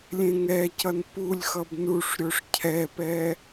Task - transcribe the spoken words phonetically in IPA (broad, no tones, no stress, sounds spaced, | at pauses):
lʲ ẽ ŋ ɛ c ʌ n p u lʲ x ʌ b n u ʂ ɾʲ o ʂ cʰ ɛ p ɛ